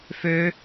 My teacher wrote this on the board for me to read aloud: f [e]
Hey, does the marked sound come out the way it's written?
no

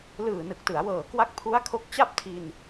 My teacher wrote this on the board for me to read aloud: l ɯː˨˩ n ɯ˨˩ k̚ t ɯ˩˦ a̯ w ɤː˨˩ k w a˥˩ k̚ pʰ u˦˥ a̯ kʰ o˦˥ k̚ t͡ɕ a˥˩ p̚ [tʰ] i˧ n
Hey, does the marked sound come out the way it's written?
yes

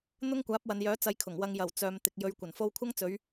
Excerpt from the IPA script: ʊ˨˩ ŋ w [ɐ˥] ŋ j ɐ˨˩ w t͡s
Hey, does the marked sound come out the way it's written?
no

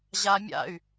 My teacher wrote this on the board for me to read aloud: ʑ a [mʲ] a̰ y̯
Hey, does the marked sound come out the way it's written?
yes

